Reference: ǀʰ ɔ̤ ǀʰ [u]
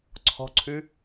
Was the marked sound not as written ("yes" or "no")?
yes